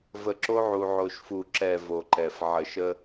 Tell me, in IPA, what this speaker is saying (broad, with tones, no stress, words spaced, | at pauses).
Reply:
və˨ǁo˦ ʕu˨ʕo˨ʃ fu˨ǁɛ˨ vo˨ǃɛ˨f ʕə˨ʃə˦